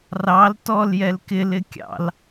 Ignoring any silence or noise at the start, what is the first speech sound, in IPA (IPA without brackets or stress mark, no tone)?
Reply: r